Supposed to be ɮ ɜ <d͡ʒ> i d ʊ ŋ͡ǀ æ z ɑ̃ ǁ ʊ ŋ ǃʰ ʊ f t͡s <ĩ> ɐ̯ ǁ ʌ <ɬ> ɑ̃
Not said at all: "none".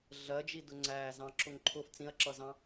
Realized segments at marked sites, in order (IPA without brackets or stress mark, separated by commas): d͡ʒ, ĩ, z